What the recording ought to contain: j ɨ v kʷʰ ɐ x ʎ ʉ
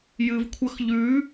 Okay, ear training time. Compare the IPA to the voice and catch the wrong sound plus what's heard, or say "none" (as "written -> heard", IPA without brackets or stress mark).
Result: none